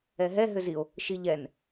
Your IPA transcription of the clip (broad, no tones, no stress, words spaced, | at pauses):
ɛɦɛ ɦʏzio̯ | ʃiʎɛn